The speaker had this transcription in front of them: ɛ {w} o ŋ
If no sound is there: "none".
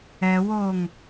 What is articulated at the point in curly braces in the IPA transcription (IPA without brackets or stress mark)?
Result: w